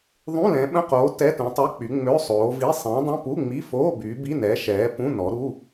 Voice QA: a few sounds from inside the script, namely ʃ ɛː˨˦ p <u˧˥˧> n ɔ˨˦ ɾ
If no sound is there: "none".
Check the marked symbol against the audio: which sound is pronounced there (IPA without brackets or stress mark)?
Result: ũ˧˥˧